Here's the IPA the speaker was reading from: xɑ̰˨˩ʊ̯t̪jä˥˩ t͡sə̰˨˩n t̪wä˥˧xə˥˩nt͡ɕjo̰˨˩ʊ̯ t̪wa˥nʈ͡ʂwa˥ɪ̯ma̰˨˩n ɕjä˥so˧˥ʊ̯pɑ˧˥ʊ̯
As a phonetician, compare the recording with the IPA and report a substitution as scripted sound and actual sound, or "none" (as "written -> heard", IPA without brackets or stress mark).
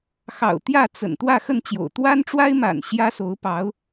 none